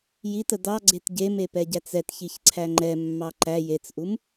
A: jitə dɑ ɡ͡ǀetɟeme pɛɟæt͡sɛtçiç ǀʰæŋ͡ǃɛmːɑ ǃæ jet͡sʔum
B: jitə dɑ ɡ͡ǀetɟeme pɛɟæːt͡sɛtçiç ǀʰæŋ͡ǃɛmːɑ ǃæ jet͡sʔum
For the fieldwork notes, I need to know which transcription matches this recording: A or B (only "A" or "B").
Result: A